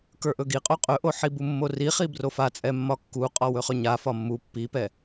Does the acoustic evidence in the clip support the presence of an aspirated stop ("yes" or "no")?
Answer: no